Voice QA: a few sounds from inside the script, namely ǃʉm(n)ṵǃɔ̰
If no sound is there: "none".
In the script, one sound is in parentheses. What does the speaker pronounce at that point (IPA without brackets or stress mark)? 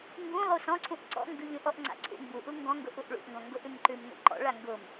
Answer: n